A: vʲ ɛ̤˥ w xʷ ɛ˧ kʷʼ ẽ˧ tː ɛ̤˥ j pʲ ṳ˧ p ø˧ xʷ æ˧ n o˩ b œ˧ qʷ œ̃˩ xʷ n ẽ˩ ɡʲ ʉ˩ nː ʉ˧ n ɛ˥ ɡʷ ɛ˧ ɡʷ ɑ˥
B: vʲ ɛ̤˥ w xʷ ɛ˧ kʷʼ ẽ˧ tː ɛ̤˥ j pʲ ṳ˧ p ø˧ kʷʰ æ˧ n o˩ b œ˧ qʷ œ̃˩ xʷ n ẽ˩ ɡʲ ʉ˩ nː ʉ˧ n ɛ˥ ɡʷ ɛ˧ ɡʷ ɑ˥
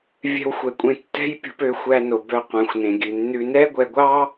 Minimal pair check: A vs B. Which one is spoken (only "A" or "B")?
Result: A